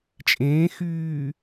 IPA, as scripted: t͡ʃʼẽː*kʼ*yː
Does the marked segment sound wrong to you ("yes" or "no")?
yes